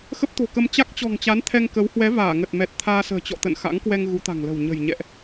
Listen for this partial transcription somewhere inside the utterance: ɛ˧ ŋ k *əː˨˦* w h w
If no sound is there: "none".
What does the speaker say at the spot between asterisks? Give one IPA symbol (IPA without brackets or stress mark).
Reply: ə˨˦